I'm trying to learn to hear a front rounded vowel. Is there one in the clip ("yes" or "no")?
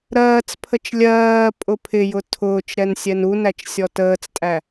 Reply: no